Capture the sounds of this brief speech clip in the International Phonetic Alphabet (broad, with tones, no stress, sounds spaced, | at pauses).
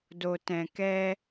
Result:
d o˨ t ɛ̃˨ k ɛ˧